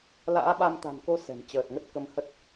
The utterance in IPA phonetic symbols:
l a̰ː˧˥ ɓ a˧ m t̪ a̤˨˩ n k o˧ s ɛ̤˨˩ m t͡ɕ əː˨˩ t̚ ŋ ə˦˥ t̚ k ə˧ m h ə˦˥ t̚

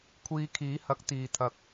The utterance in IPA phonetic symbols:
kʷʰ iː˧ kʰ iː˨˥ h ɐ˨˥ k̚ t̪ iː˨ t̪ʰ ɐ˨˥ k̚

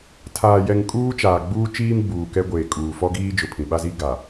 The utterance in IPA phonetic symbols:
tʰ aː˨ j ɛ˨ ŋ kʼ uː˦ t͡ʃ aː˨ ɡ͡b uː˦ t͡ʃ iː˦ m ɡ͡b uː˨ k ɛ˦ ɡʷ eː˨ kʼ uː˨ f ɔ˦ ɡ iː˦ d͡ʒ ʊ˨ pʰ ĩ˨ ɓ a˦ z i˦ ɡ a˨

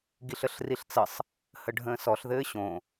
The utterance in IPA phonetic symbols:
ɡ i ɬ ə ɬ r i ɬ t͡s ə sˤ | h ə ɖʱ ə̃ː s ɔ ɬ ð ɘː ɕ õ

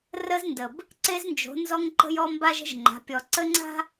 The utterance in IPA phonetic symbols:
r ə˦ z n d ə˨ b | ǀ e˦ z n d͡ʒ o̤˨˦ n z ɔ˦ ŋ ǃ ə̤˦ j ɔ˦ m b a˦ ʒ ə̤˦ ʒ ŋ͡ǃ a̤˨˦ pʲ ɔ˨ ǀ ə˦ ŋ͡ǀ a̤˦

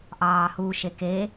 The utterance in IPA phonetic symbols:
ʔ ɑː h u ʃ e k e

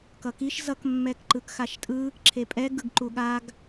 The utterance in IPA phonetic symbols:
k ʌ k i ʃ z ʌ k mː ɛ k ǃ ɯ k x a ʃ tʼ ɯ | ǁʰ e pʼ ɛ ɡ ɯ ɡ ǃ u ɠ a ɡ

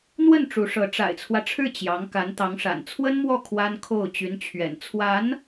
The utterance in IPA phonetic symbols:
n̪ w ə˥˩ n ʈ͡ʂ u˧˥ ʂ ɤ˧˥ ʈ͡ʂ a̰˨˩ ɪ̯ t͡sʰ w ä˦ ʈ͡ʂʰ ɻ̩˥˩ t͡ɕ j ɑ˧˥ ŋ k a˧˥ n t̪ ɑ˧˥ ŋ ʂ a̰˨˩ n t͡sʰ w ə˥ n m w ɔ˥˩ kʰ w a˥ n kʰ o˥˩ ʊ̯ t͡ɕ y˧˥ n t͡ɕʰ ɥ ɛ̰˨˩ n t͡sʰ w a˧˥ n

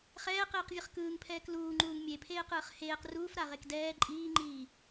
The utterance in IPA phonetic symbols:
χ ɛː q iː q vʲ ɯ χ k ɯː ŋ pʰ ɛː k l uː ŋ͡ǃ uː ŋ mʲ e pʰ eː q ɯː χ h eː q r uː f ɾ a ʁ e k d ɛː ǃʼ iː ŋ͡ǃ iː

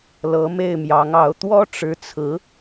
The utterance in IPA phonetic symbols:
l ɤ˧˥ m e˥˩ ɪ̯ m j ɑ˧˥ ŋ ɑ˧˥ ʊ̯ t̪ w ɔ˥ ʈ͡ʂ ɻ̩˧˥ t͡sʰ ɹ̩˧˥

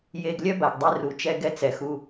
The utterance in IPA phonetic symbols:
j e˧ ɡ lʲ œ˦ b a˨ ɡ dˤ i˧ r u˨ t͡ʃ ɛ˧ ɡ ɛ˧ t͡s ɛ˨ x u˧

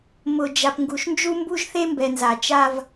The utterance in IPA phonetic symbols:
m ʊ˨ d͡ʒ a˨ p ŋ ɡ u˨ ʃ n d͡ʒ u˦ m b u˦ ʒ θ e˦ m b ɛ˨ n z a˨ t͡ʃ a˦ v

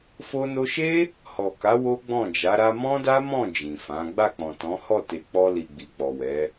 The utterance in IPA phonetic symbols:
f o˧ n o˧ ʃ e˦ | h ɔ˨ k a˨˦ w o˦ ɡ͡b ɔ̃˦˨ d͡ʒ a˨˦ ɾ a˧ m ɔ̃˦ d a˦ m ɔ̃˦˨ d͡ʒ ĩ˨ f ã˨˦ ɡ͡b a˦˨ k͡p ɔ̃˨ t ɔ̃˨˦ h ɔ˦˨ t e˨ k͡p ɔ˧ l i˨ ɡ͡b i˨ k͡p ɔ˨ w ɛ˨˦

